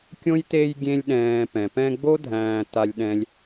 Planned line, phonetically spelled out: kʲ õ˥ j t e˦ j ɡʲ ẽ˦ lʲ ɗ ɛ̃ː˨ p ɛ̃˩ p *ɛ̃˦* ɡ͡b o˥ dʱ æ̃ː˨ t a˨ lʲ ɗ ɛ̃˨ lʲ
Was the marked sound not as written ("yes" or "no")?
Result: no